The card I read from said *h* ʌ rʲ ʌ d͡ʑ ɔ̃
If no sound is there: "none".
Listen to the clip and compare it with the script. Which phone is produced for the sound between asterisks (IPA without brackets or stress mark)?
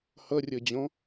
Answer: h